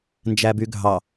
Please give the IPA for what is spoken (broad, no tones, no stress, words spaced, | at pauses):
nd͡ʒæbyɡʱɑ